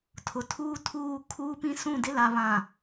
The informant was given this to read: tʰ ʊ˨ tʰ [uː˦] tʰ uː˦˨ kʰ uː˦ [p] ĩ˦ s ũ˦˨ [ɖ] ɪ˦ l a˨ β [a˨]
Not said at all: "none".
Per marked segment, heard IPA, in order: uː˦, p, d, ã˨

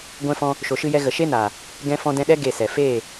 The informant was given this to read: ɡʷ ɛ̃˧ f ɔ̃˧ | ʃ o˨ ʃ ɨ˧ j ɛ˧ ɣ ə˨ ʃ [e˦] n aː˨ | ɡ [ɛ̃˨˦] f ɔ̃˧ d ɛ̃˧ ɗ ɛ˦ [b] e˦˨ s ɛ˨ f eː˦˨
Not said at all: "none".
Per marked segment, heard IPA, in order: e˦, ɛ̃˧, ɡ

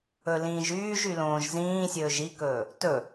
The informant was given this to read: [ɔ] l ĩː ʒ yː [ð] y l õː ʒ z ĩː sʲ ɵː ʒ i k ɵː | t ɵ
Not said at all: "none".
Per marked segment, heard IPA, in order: ɵ, ʒ

